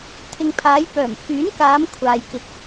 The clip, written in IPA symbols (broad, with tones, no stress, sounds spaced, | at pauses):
t̪ʰ ɪ˨ ŋ pʰ aː˨˧ j p œː˨˩ m pʰ yː˨˥ n k aː˨˧ m kʷʰ aː˨ j k ɪ˨ k̚